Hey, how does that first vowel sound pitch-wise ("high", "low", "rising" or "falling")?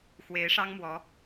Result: rising